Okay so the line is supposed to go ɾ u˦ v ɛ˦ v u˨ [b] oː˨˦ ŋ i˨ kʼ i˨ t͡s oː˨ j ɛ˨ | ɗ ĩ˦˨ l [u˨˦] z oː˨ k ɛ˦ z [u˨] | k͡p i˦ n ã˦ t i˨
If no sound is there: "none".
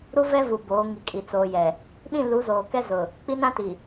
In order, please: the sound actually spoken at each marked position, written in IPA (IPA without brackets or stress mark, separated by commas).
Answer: b, u˨˦, ʊ˨